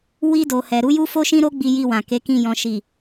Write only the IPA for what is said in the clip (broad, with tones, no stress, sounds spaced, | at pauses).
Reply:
w i˧ d o˨ h ɛ˨ ɾ u˨˦ j u˦ f o˦ ʃ ĩ˦ ɾ o˦ ɡ͡b i˧ j i˧ w ã˨ k e˨˦ k ĩ˧ j ɔ̃˨ ʃ i˨